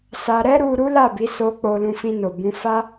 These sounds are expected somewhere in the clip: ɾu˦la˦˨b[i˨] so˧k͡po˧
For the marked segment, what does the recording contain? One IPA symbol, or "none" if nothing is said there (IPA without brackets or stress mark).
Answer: i˨˦